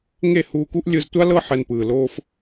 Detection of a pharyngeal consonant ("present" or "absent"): present